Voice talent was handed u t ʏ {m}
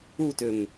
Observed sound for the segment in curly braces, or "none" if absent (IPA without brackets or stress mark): m